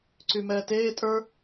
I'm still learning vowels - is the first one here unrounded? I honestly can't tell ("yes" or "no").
no